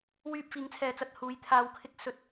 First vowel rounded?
yes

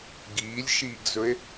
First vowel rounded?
no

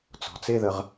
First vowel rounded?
yes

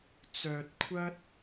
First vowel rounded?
yes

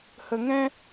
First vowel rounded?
no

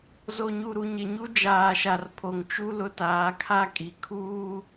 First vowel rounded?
yes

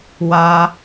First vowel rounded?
no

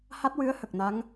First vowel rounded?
no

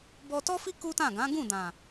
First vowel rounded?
yes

